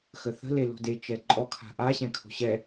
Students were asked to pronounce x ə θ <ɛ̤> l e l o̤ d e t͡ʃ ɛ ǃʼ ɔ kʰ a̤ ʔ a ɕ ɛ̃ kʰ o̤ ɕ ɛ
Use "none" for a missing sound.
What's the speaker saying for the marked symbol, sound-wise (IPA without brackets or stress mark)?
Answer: ə̤